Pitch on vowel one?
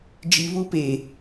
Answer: low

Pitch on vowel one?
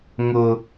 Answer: high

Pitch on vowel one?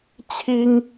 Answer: high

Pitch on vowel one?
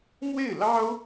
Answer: falling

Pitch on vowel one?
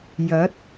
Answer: rising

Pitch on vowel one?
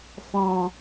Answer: low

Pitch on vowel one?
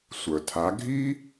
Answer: low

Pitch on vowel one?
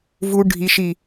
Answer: low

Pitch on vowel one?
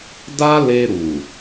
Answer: high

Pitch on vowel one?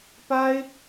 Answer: high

